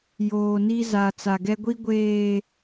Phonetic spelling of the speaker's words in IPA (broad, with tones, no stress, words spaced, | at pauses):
joː˨ni˦ za˨ t͡sa˨ɡɛ˦ɡʷi˦ ɡʷeː˨